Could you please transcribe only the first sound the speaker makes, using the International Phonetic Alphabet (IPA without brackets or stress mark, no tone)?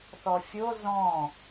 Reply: θ